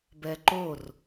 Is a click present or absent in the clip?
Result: present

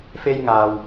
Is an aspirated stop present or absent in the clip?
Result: absent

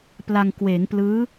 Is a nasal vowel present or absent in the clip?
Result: absent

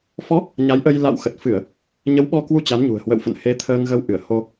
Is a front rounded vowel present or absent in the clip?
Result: absent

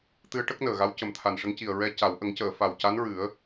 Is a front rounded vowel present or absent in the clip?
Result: absent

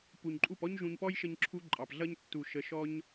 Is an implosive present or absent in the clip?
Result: absent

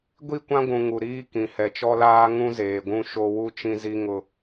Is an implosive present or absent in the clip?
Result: absent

